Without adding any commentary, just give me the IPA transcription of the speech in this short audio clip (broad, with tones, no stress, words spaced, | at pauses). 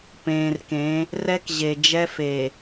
pẽː˨rkẽ˨˦ | rɛ˦kʑe˨ d͡ʒɛ˦fe˨